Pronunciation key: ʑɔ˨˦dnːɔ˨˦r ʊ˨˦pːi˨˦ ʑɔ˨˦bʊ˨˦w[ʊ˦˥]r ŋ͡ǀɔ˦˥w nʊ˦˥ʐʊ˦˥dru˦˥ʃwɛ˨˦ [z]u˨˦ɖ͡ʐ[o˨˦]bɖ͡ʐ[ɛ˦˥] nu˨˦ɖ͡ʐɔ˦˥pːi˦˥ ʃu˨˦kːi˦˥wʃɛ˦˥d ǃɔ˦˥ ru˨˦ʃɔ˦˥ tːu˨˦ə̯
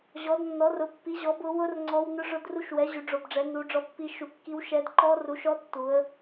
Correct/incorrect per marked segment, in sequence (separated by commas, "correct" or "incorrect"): correct, incorrect, correct, incorrect